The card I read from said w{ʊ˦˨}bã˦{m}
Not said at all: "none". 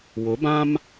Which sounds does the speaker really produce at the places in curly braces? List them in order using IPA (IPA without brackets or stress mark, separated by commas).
ʊ˨˦, m